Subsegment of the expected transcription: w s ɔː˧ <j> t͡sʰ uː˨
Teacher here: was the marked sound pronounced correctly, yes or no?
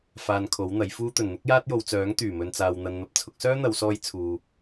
yes